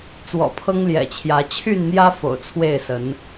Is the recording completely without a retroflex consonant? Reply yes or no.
yes